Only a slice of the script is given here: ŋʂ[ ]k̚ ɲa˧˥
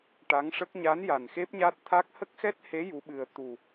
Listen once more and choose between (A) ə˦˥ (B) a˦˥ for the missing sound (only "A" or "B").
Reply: A